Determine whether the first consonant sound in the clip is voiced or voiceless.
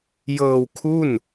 voiced